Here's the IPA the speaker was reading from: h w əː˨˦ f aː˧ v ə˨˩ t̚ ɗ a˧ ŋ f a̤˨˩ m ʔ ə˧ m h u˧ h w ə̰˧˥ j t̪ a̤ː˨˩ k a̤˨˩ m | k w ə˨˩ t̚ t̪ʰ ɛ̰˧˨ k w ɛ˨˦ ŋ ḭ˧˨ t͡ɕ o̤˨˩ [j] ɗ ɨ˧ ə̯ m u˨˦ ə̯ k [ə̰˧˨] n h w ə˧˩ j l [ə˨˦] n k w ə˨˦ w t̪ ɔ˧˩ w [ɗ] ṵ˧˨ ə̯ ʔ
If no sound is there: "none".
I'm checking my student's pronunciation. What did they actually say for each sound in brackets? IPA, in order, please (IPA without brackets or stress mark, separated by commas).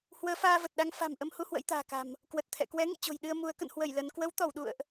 j, ə̰˧˨, ə˨˦, ɗ